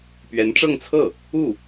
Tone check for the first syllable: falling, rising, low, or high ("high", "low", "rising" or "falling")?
rising